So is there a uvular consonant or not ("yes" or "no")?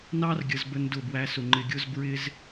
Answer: no